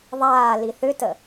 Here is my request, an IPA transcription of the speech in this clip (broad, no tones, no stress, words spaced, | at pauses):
ðˤaːli θʏtə